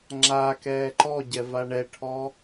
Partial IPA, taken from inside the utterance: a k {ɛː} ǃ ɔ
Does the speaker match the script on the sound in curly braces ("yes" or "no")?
yes